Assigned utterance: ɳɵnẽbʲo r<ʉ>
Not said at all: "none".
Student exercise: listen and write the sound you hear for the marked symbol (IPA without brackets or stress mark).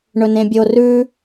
ʉ